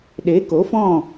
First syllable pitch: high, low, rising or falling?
rising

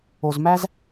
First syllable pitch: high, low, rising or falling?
low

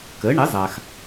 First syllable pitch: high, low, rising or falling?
rising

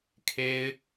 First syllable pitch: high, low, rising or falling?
high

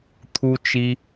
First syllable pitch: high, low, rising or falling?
high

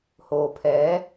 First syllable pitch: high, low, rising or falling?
low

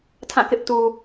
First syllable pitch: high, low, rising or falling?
falling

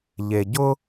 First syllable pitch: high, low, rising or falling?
low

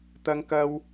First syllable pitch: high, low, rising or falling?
high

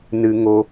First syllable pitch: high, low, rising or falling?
high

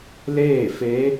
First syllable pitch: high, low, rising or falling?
falling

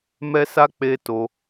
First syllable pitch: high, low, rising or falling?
high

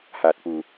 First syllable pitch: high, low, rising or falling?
low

